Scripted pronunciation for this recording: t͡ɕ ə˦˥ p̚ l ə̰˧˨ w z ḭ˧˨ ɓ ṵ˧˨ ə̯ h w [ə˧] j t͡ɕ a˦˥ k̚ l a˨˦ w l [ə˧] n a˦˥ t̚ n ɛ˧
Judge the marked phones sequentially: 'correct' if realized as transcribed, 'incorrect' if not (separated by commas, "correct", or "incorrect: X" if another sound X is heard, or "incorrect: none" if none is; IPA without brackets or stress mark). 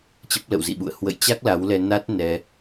incorrect: ə̰˧˨, incorrect: ɛ˧